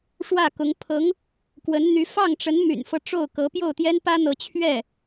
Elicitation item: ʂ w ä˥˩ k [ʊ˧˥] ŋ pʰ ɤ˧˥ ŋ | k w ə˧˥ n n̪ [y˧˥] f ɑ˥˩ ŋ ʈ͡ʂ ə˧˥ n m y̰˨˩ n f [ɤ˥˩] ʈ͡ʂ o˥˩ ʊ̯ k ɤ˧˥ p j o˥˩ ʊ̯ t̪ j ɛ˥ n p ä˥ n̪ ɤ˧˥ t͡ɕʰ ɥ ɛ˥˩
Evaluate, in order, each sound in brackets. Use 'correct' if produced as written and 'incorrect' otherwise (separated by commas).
correct, correct, incorrect